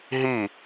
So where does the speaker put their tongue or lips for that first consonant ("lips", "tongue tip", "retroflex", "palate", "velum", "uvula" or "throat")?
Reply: throat